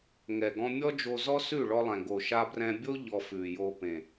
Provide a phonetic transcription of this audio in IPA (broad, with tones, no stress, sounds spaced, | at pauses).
ŋ ɛ˨ ɡ ɔ̃˧ mʲ ɔ˦ d͡ʒ o˧ z ɔ˦ s ʉ˦˨ ɭ ɔ˧ lˠ ɛ̃˨ ɡ o˨ ʃ a˧ b r ɛ̃˧ bʲ o˦ ʎ ɔ˧ f ʉ˨ j o˧ p ẽ˨